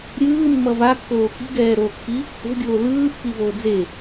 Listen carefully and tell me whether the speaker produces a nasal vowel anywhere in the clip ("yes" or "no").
no